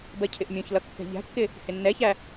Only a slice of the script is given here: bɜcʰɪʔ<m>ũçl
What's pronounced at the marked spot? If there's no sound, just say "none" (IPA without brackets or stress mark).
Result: mʲ